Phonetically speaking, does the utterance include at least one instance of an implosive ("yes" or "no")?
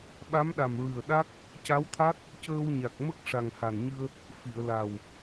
yes